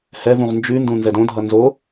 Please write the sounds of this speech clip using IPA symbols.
h ɛ v ũ ʁ n d͡ʒ ʉ n d ũ n z ɛ d õ dʱ ʌ n z o

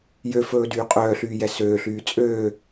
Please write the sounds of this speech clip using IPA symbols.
j ø f ɵː d yː qʼ œː ɬ yː j ɛ s øː ɬ yː t͡sʼ øː

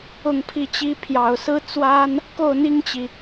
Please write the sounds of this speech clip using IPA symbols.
ʊ˥˧ ŋ pʰ i˥˩ t͡ɕ i˥ pʰ j ɑ˨˩ ʊ̯ s ɹ̩˥ t͡s w a˥ n | k o˥˩ ʊ̯ n̪ i˥ ŋ t͡ɕ i˨

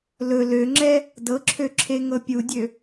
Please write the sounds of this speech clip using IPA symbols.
l ɵ l ø ŋ͡ǁ ɛ | d ɤ ǁʰ ø ǁʰ e ŋ ɤ pʲ u dʲ ø

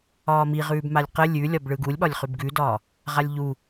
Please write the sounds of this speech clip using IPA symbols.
ɒː m i ʁ ʉː b m a lʲ q ə lʲ ʉ lʲ ɒ b ɭ ɯ ɡ u lʲ ɓ ɒ lʲ χ ʉ b ɡ ʉ d ɒː | ʁ a lʲ ʎ u

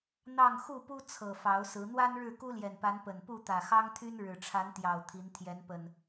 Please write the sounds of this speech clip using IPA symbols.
n̪ ɑ˥˨ ŋ x u˥˨ p u˦ t͡sʰ ɤ˨˩ f ɑ˨˦ ʊ̯ s ɹ̩˨˦ n̪ w a˦ n ɻ ɻ̩˥˨ k u˦ l j ɛ˨˩ n p a˨˦ n p ə˨˩ n p u˥˨ t̪ ä˨˩ x ɑ˦ ŋ t̪ʰ y˦ n ɻ ɻ̩˨˩ ʈ͡ʂʰ a˨˦ n t̪ j ɑ˨˩ ʊ̯ t̪ʰ i˨˦ n t̪ʰ j ɛ˨˦ n p ə˨˩ n

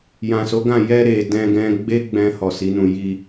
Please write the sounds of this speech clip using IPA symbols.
j ã˨ s o˨˦ ɡ ã˦˨ j ɛ˧ ɾ e˨ d ɛ̃˧ ɡ ɛ̃˧ ɡ͡b e˦ ɡ͡b ɛ̃˧ h ɔ˨ s i˨˦ n ũ˧ j i˧

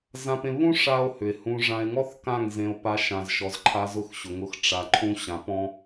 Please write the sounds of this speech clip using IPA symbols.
z ã˦ p ẽ˦ β ũ˦ ʂ a˦ o̯ h ʏ˨ e̯ h ũ˧ ʐ ã˧ e̯ ŋ ɔ˦ θ k ã˦˨ ŋ z ẽ˧ o̯ p a˧ ʃ ã˨ z ʃ ɔ˨ z ǃʰ a˧ z ʊ˦˨ x ɕ ʊ˨ ŋ ʊ˧ x ʈ͡ʂ a˨ ǃʰ ũ˧ ɕ ã˨˦ p ɔ̃˦

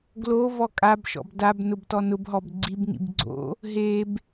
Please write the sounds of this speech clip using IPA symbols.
ɡ l o v ɔ kʼ a b ʃ ɔ̰ b d a b n ʊ b t ɔ n ʊ b ɦ ɔ b ɡ͡ǀ i b n ḭ b ɡ͡ǀ o̰ | ɦ e b

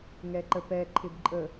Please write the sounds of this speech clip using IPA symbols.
ŋ ɛ ǃ ə p ɛ ǃʰ ɪ b ǃʼ ə

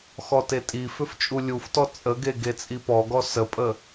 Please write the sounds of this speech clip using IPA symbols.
x ɔ t e tʼ i f ʏ f t͡ʃʼ u lʲ u f t ɔ t͡sʼ ə ɡ e ɡ e t͡sʼ i p ɔ ɡ ɔ s ə pʼ ə

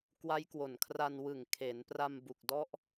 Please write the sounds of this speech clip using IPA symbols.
k w a˦˥ j k w o˨˩ n kʰ r a˧ n w ɯ˨˩ ŋ kʰ e˩˦ n p r a˧ m b u˨˩ k̚ d ɔ˦˥ ʔ

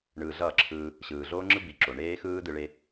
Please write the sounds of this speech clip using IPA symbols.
ɳ ɯː˨ ɮ ʌː˦˨ ǁʰ ɯː˧ | ɕ ɯː˨ ɮ oː˦ ŋ͡ǁ ɯ˦ b i˨ ǁ o˨ ɳ eː˦ x ɯː˦ d ɯ˧ ɭ e˦

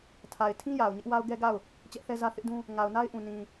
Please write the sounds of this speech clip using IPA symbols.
tʰ a˨ ɪ̯ tʰ ĩ˦ j a˨ ʊ̯ ɲ ɪ˦ ʔ w a˦ ʊ̯ ɡ ɛ˦ ɡ a˦˨ ʊ̯ | t͡ɕ ɛ˦ ʔ θ ɛ˦ z ä˦ θ ɪ˦ ʔ d ũ˦ | ŋ a˨ ʊ̯ n a˦ ɪ̯ ʔ ũ˨ n ĩ˨

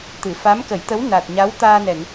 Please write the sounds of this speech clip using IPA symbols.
t̪ ɨ˨˩˨ f a˧˥ m k ə˨˩˦ j t̪ ə˧˥ w n a˨˩ t̚ ɲ a˧˥ w t̪ aː˧ n ɛ˨˩˨ ŋ

